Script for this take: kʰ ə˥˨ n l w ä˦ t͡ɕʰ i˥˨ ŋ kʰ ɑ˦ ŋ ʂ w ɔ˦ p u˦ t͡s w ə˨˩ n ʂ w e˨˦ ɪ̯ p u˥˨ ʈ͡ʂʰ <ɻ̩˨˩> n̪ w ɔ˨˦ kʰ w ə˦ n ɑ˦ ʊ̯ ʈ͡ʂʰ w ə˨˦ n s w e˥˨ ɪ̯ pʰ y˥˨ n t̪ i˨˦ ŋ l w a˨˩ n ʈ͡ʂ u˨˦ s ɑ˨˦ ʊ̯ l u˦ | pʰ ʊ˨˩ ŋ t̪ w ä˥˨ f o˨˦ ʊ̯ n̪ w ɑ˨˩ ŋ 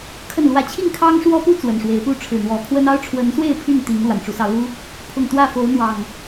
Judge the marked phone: correct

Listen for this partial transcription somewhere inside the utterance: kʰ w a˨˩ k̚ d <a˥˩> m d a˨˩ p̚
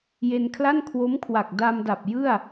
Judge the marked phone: incorrect: a˧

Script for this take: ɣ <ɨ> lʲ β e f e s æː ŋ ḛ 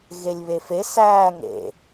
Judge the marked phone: incorrect: e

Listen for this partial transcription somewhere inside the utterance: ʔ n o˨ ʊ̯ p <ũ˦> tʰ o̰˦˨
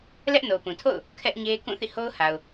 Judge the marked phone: incorrect: ũ˨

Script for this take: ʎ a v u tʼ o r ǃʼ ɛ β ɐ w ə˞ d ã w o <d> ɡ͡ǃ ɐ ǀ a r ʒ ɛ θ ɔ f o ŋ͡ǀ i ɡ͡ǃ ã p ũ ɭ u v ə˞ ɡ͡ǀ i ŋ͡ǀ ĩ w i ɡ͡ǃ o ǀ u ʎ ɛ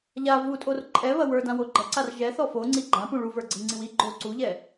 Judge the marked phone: incorrect: none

